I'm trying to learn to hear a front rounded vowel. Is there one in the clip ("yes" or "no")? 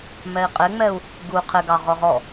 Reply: no